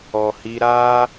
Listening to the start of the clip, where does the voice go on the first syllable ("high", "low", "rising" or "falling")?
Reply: low